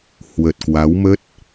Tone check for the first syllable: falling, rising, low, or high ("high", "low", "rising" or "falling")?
low